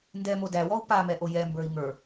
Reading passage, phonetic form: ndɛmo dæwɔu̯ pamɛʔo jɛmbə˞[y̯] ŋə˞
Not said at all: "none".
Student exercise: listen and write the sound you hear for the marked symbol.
i̯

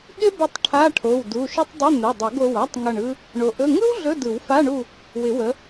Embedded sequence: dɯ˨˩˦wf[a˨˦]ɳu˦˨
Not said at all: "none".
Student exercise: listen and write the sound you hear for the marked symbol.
a˧˥˧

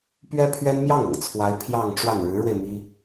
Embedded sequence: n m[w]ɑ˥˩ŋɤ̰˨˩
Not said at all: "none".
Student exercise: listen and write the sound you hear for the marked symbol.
j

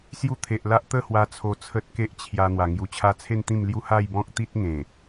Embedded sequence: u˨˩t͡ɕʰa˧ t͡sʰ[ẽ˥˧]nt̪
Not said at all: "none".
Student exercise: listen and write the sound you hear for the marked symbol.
e˥˧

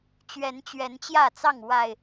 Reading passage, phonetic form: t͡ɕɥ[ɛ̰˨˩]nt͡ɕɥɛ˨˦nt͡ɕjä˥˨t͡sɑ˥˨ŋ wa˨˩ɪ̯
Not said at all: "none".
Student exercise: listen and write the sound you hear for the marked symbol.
ɛ˨˦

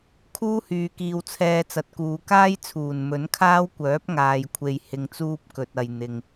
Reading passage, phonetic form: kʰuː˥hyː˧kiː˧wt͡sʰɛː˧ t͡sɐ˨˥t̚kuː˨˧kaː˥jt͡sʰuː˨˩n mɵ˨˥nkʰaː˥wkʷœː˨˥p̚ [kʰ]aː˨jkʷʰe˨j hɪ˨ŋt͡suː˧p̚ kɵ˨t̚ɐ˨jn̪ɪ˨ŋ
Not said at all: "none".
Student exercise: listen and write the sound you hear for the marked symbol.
ŋ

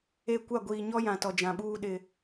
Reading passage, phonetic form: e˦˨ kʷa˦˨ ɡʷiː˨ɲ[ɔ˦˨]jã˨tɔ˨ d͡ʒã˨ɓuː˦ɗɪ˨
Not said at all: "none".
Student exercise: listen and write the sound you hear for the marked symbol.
ɔ˦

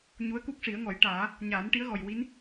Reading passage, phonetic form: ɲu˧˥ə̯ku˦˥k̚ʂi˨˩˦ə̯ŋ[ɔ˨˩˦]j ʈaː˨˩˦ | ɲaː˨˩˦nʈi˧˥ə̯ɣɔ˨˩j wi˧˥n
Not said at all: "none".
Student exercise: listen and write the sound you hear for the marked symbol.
ɔ˨˩˦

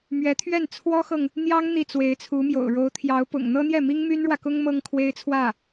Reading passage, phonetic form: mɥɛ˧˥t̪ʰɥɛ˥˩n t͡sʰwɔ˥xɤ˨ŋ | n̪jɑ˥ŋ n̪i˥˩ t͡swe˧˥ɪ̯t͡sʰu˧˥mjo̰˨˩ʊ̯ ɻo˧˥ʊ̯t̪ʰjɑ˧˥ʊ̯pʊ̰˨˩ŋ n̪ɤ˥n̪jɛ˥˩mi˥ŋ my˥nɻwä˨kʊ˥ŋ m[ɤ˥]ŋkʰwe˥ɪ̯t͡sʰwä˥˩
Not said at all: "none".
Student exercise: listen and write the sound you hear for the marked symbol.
ɤ˥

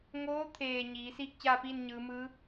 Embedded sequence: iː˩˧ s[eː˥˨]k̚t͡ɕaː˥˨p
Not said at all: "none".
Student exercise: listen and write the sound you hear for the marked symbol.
iː˥˨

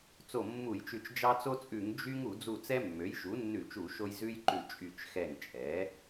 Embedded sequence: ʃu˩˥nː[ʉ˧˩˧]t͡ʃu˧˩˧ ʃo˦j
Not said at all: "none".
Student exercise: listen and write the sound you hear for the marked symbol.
ʉ˧˩˧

